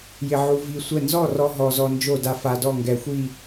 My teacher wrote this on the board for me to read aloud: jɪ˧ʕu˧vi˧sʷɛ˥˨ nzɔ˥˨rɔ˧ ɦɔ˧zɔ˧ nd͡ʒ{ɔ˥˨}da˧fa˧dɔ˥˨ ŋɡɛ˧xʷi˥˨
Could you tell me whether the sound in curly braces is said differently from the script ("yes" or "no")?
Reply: yes